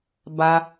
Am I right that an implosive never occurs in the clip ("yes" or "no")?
yes